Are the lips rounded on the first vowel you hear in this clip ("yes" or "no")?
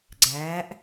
no